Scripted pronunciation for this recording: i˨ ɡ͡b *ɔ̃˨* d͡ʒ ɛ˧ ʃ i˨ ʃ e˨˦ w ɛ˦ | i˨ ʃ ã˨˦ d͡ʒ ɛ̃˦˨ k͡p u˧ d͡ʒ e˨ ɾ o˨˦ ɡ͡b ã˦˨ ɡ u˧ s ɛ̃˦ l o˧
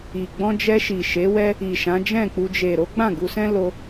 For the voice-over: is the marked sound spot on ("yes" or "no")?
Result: no